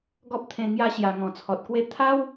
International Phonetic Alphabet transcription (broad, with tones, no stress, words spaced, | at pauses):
ɡɔ˦p̚t̪ʰẽ˧ ŋja˧ɕja˨˩ ŋɔ̃˨˩t͡sʰɔ˨t̚kwe˦ t̪ʰa˦w